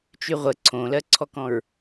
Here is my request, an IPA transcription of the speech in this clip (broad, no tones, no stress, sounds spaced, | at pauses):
t͡ʃ y ʁʷ ə ǀʰ õ l ɜ ǀʰ ɔ k ɔ̃ ɹ